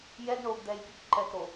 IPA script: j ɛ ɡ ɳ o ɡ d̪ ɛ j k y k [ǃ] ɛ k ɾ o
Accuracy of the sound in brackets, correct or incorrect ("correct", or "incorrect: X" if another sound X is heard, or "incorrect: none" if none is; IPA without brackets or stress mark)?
correct